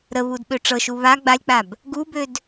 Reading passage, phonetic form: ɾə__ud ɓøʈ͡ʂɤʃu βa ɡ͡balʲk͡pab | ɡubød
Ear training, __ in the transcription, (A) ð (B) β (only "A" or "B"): B